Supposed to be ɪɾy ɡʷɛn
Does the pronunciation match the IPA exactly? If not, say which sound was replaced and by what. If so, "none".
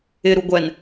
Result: y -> u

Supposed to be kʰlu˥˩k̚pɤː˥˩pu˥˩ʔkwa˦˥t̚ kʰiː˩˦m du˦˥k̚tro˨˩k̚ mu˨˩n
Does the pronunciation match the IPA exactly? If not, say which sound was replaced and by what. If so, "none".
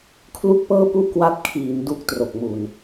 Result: none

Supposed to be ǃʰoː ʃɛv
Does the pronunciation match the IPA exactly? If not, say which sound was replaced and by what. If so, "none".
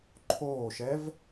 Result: none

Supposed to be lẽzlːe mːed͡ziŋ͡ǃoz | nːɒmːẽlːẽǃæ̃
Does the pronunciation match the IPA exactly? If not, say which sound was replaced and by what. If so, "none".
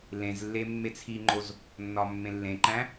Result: d͡z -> t͡sʰ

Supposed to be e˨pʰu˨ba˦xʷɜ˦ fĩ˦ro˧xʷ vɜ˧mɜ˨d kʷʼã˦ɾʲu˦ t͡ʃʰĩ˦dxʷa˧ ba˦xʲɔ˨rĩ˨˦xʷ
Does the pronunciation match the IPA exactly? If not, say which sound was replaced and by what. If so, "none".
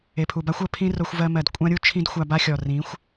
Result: f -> pʰ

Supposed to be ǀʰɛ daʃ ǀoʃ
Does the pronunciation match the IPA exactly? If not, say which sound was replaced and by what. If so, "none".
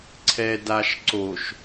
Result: none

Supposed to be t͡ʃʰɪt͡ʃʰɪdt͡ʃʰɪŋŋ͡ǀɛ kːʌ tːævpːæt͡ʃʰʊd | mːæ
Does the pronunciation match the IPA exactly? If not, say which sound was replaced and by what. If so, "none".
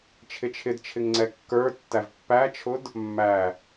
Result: ʌ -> ə˞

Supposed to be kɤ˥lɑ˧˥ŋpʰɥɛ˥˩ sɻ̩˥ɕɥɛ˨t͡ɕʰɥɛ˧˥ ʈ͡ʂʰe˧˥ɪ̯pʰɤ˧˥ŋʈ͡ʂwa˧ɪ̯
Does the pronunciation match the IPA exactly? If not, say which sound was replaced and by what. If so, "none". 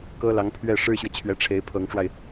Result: s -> ʂ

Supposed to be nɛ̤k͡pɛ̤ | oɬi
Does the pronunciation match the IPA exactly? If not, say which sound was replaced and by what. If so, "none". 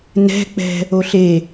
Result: i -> e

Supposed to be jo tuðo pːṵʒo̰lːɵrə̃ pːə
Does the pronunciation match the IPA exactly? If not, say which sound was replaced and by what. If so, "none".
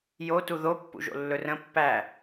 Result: ə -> æ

